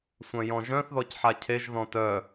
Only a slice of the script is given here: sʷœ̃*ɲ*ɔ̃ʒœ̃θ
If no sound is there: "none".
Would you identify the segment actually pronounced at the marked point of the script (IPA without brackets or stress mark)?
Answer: j